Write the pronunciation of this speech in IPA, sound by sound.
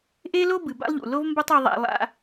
ʔ e˦ l o˦ b ɨ˨ b a̰˦ lˠ ʎ ṵ˨ l o˦ v m b ɐ˦ tˤ o˧ ðˤ a̰˧ lˠ a̰˧

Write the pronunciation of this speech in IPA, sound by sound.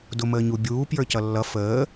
d ʊ m əː ɲ u bʲ uː p j ə˞ c ʌ lː ʌ f əː

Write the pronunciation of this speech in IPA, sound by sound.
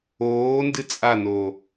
oː n d ɨ t͡sʼ a n oː

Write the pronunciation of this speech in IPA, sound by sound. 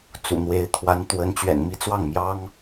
t͡s ṵ˨˩ n̪ w e˧˥ ɪ̯ t̪ʰ w a˧˥ n t̪ w ə˧˥ n t͡ɕ ɥ ɛ̰˨˩ n m i˥˧ t͡s w ɑ˥˩ ŋ m j ɑ˥ ŋ

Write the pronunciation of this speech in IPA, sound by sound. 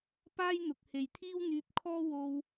p aː˥ j n̪ ʊ˨ k̚ h e˨ j t̪ʰ iː˥ w n̪ yː˧ p̚ kʰ ɔː˥ w o˧ w

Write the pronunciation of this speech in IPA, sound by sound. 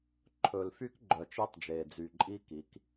ǃʰ ɵ˨ l f y˦ k ɡ͡ǃ œ˨ t͡ʃ e˦ tˤ d͡ʒ eː˨ d͡z y˨ ǃʼ i˦ k i˨˦ k

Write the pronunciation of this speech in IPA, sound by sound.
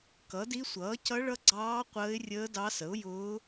k ʌ˨˥ d i˦˥ sʷ ʌː˨˥ c ʌ˦˥ ɭ ʌ˦˥ ɡ͡ǀ ɑː˦˥ qʷ əː˦˥ ɪ̯ rʲ əː˦˥ d ɑ˦˥ s ə˨˥ ʊ̯ j ʊː˦˥

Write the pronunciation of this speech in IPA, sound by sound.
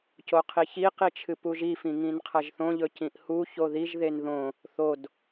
c o qʰ i ç i q i t͡ʃʰ ɨ p u ʒ i f ĩ ŋ ĩ n qʰ ɐ ʒ θ õ ʎ ɵ c ĩ ʔ h u ç o ð i ʒ ð e n ð õ | θ o d

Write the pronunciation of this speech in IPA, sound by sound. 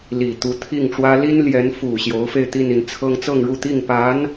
l i˨˩ t̪ u˧˥ t̪ʰ i˥˩ ŋ ʈ͡ʂ w ä˥ l i˥ n l j ɛ˧˥ n f u˨˩ ɕ j o˧˥ ʊ̯ f e˥˧ ɪ̯ t̪ i˥˧ n i˥˩ n t͡sʰ ɤ˥ ŋ t͡s ɤ˥˧ ŋ ɻ u˥˧ t̪ i˥˩ ŋ p a˧˥ n

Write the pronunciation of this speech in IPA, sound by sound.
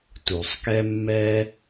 t u˩ sˤ k ɛ˥ mː ɛ˥

